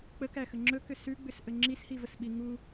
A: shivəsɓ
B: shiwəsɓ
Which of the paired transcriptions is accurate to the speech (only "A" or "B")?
A